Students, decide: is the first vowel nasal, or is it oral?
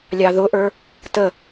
oral